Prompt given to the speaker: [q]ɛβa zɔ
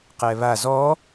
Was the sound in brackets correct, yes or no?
yes